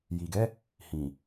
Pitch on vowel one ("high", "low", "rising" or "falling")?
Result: low